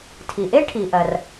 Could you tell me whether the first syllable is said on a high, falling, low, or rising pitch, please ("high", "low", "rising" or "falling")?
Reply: low